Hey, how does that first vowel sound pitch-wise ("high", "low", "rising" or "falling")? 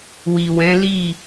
low